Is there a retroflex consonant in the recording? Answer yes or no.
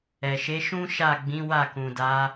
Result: no